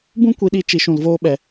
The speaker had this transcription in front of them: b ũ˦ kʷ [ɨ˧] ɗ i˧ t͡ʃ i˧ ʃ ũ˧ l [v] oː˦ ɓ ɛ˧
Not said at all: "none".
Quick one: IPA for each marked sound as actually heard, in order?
i˧, v

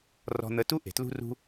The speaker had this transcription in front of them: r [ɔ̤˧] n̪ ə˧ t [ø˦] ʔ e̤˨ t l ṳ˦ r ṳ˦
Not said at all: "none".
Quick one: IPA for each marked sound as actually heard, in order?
ɔ̤˧, u˦

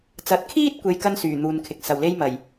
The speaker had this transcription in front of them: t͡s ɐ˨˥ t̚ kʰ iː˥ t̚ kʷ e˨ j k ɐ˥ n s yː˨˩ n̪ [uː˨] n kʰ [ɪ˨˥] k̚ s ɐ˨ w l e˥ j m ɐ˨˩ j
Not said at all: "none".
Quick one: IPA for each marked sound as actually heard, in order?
uː˨, ɪ˨˥

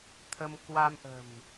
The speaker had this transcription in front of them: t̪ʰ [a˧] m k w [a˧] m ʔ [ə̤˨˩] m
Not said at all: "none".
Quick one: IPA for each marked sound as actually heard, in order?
ə˧, a˧, ə̤˨˩

